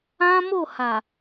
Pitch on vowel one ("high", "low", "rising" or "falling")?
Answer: high